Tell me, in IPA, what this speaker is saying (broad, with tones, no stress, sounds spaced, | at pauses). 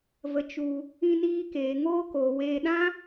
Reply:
v ə˧ t͡ʃ u˧ | ĩ˧ n iː˧ k eː˨ ŋ oː˧ k oː˨ w eː˧ ɗ ã˦